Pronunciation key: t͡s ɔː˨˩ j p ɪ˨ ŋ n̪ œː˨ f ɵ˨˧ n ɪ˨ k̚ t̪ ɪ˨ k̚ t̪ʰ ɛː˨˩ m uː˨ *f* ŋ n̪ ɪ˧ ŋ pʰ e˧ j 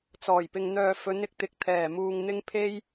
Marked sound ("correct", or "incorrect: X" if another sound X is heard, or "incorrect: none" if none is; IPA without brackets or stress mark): incorrect: none